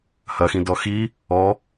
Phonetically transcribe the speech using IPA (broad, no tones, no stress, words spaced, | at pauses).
hɐxĩ dɔxi | ɔ